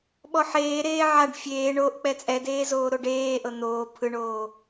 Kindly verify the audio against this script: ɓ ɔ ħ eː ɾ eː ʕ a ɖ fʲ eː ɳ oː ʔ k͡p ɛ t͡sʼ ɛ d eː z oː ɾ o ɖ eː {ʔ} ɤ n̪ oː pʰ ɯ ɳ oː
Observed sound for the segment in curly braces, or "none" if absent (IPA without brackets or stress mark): ʔ